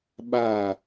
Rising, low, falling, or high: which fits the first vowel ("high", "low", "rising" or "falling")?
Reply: falling